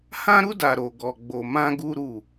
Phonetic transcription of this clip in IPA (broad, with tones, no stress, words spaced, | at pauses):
hã˦ɾu˦ da˧ ɾo˧ɡɔ˧ɡ͡bo˧ mã˦ɡu˦ɾu˦˨